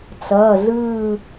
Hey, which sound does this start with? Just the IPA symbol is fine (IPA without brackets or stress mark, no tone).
t͡s